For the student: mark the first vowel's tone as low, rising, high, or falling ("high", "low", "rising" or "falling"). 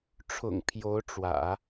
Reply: low